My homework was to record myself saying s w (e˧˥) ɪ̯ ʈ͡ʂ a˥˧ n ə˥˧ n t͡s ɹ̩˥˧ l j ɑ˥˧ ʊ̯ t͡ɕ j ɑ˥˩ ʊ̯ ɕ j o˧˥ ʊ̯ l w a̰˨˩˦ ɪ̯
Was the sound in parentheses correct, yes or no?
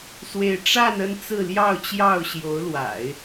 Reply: no